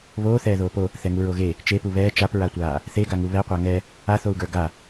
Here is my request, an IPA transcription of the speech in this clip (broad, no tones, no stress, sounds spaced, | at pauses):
β oː θ ɛː ð oː p o | θ ɛ ŋ u ɹ o ɣ e | t͡ʃ e p u β ɛː t͡ʃ a p ɹ a tʷ aː | θ e ɡ a ŋ u β ɛ qʷ a ŋ ɛ | a θ o u̯ ɡ ə˞ ɡ a